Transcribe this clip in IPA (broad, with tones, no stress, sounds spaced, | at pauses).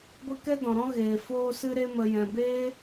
ɡʷ i˧ k ɛ˦ d ɔ̃˨ ɾ ɔ̃˦ ɣ eː˨ f oː˧ s ɨ˧ ɾ e˧ m ə˨ j ɛ̃˨ b eː˦